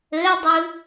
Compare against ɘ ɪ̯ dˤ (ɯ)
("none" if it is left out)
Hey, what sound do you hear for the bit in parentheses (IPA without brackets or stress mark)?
ɯ